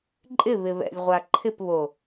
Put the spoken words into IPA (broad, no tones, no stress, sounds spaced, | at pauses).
ǃʼ ɪ β ɪ β ɛ̰ lʲ ʁʷ a ǃʰ ɪ p β o